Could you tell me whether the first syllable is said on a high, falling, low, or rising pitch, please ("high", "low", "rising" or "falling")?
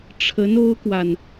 rising